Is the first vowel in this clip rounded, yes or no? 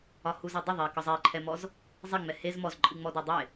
yes